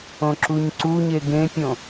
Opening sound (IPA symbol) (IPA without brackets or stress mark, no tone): õ